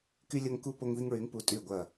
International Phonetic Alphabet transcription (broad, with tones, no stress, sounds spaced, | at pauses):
k y˦ lʲ ɐ˦ ŋ k u˦ p o˦ ŋ ð i˦ ŋ ɹ y˨˥ ŋ p u˨˥ tʼ y˧˩ ɡʷ ɐ˧˩